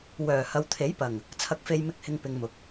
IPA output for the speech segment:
wœː˨˩hɐ˨˧wt̪ʰe˨˥jpɐ˨˩ŋ | t͡sʰɐ˨k̚fe˨jmɪ˨˥k̚hɪ˨ŋ pɪ˨˧ŋmʊ˨k̚

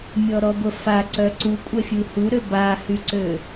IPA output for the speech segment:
mʲɔɾɔɡʷəfa ǀœǀu kʷʼɛfʲuhuɾø bahyǀø

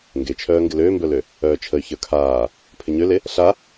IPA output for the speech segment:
ŋɡet͡ʃʰœː ŋɡɪløːmbœlø | œːt͡ʃʰəy̯ çə˞kʰaː | pʰɪɲøle | ɬa

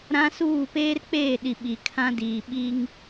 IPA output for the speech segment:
ɾã˦ suː˦˨peː˦rk͡peː˦˨ɗi˨ ɓi˨kʰã˦diː˨ ɓi˦ŋ

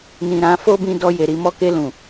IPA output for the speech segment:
nĩ˨ ɾã˨˦ fo˦bĩ˧dɔ˧ je˨ɾi˧mɔ˧ ke˧lũ˨

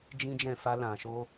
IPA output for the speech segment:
d͡ʒĩ˦d͡ʒɛ̃˦˨ fa˧ lã˨ ʃo˧

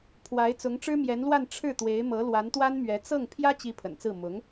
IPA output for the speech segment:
pʰwa˧˥ɪ̯ t͡sʊ˧˥ŋʈ͡ʂɻ̩˥mjɛ˧˥nlwa˥˧n ʈ͡ʂʰɻ̩˥˩t̪we˧˥ɪ̯mɤ˧˥ lwa˧˥nt̪wa˥nmɥɛ˧˥ t͡sɤ˥˩ŋ pʰjä˥t͡ɕi˧˥ pʰə̰˨˩nt͡sɹ̩˥˩ mʊ˧˥ŋ

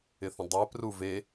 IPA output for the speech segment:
ɪθə̃dˤɛ pruve

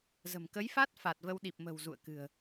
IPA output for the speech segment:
zə̤˨˩m kə˨˦jfa˦˥t̚ fa˨˩t̚və˧wɗi˨˩p̚ mə̤˨˩w zṵ˧˨ə̯kɨ̤˨˩ə̯

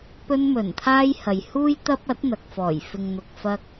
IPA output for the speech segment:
pɵ˧nmɵ˨˩nt̪ʰaː˧j hɐ˨jhuː˥j t̪ɐ˥p̚ ɐ˨˥t̚n̪ɐ˨k̚fɔː˨˩j fɪ˨ŋn̪ʊ˨k̚ fɐ˧k̚

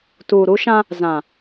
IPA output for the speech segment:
tuː˨ɾu˦ʃã˦ | zã˨

